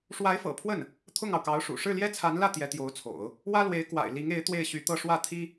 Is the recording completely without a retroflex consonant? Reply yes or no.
no